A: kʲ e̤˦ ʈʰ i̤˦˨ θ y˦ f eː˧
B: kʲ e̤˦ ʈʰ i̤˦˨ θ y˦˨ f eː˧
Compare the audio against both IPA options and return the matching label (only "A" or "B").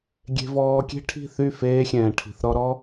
B